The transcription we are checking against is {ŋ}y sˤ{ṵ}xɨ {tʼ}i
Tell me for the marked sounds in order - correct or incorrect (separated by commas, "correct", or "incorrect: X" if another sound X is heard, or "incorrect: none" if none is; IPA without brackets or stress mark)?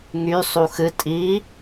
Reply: correct, incorrect: u, correct